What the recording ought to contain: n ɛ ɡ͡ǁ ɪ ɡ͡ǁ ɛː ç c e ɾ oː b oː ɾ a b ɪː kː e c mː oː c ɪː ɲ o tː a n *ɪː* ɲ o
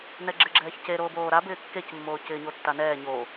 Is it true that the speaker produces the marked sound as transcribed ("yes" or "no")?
no